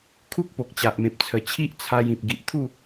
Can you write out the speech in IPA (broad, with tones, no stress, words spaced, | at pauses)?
kʰu˦k̚po˨k̚ t͡ɕa˨ʔmẽ˨p̚ t͡sʰə˨˩t͡ɕʰi˦ʔ t͡sʰa˧jĩ˨p̚ ɡi˨ʔt̪ʰu˥˧